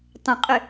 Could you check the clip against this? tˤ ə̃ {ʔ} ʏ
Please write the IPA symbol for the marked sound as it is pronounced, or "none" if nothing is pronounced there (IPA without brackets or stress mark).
qʼ